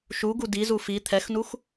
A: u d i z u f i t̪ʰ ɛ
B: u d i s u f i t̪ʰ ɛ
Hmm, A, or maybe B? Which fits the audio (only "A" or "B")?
A